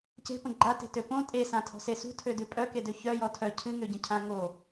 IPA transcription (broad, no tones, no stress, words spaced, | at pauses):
ce̤pə̃ ɡ͡ǃate̤tø põ tʼesãtʰɔ̤se sṳtʰødʉ pʼœkedø çœjɔ tʰœ cʰɨŋøɟə̃cʰã ŋo